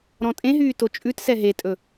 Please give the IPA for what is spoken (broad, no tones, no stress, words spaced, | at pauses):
ɾɔ̃tʼẽɦyː tot͡ʃʼʉtsɛ ɦetʼɵ